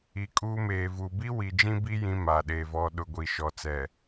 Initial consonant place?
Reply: velar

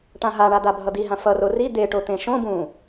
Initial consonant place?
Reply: retroflex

